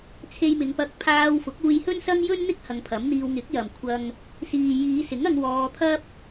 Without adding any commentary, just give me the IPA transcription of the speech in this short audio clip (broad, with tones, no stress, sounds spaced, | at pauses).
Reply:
t͡sʰ e˧ j m ɪ˨˧ ŋ p ɐ˧ k̚ pʰ aː˧ w f ʊ˨˥ k̚ uː˧ j h ɵ˥ n s ɐ˥ ŋ j ɵ˥ n n̪ ɪ˥ k̚ h ɐ˨˧ ŋ pʰ ɐ˨˥ m n̪ iː˧ w ŋ ɪ˨˥ k̚ j ɐ˨ m kʷʰ ɐ˧ ŋ | s iː˨ j iː˨˧ s ɪ˨˥ ŋ ɐ˧ ŋ w ɔː˧ t̪ʰ ɐ˥ p̚